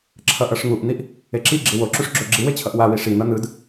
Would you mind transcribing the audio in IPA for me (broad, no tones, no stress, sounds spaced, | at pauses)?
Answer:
ǁʰ ʌ ʔ ʌ ʂ ŋ u ʔ n̪ i ʔ | e ǁ i ɡ͡ǁ i w o ǁ u ʂ ɡ͡ǁ o ɡ͡ǁ i w e t͡ɕʰ ʌ ʔ w a w i ʂ i n̪ ʌ n̪ ɯ d